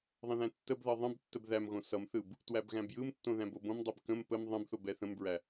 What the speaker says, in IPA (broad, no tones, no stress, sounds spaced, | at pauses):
ðˤ ə̃ ð æ̃ tː ə b ð ʌ ðˤ ə̃ b tː ə b ð æ m ɣ õ s ʌ m θ ɯ b | t w æ b ɣ æ̃ b j ɯ m tː õ ð æ̃ b o b õ m dˤ ɛ b k ə̃ m p ə m ðˤ ə̃ b θ o b ɛ θ ə̃ m b ɹ æ